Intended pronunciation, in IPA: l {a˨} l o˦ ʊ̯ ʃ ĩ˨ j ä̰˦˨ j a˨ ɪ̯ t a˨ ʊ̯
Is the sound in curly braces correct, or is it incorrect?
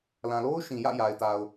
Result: incorrect